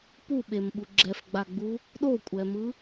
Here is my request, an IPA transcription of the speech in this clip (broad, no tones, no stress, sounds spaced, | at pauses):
p u ɓ e m ɓ u ɡ͡ǁ ɛ f ɡ͡b a ɡ͡b u | ɗ o kʷʼ ɛ m ɯ